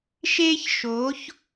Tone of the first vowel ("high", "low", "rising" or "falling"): high